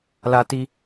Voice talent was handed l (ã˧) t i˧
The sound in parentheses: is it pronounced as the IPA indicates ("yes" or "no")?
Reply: no